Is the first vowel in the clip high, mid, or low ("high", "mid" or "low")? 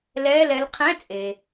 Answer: mid